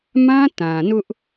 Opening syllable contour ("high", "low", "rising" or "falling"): high